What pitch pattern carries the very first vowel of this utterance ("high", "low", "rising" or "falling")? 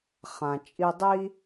low